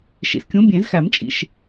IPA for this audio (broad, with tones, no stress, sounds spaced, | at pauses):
ʃ ḭ˨ s kʲ ũ˨˥ bʲ ẽ˨˩˦ z x æ˨˩˦ m t͡ʃʼ ḭ˨ ʃ